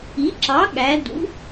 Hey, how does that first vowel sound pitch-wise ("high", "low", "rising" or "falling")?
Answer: rising